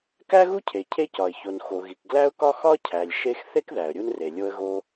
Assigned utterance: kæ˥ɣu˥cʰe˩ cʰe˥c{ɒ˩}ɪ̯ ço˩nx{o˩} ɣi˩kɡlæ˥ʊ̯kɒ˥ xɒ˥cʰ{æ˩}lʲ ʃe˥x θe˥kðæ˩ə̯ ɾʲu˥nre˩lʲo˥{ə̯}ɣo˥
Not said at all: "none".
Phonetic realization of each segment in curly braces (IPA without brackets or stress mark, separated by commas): ɒ˩, o˩, æ˩, ə̯